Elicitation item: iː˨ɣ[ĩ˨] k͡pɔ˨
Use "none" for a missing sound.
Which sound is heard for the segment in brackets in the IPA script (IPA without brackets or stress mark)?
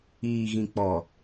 ĩ˨